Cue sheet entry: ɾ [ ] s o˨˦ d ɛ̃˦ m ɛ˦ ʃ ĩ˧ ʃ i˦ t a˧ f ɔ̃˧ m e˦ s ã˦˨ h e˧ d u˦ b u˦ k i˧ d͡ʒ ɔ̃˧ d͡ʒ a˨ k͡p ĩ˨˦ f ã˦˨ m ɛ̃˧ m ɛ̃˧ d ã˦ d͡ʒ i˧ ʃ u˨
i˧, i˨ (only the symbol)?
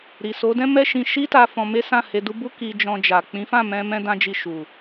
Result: i˨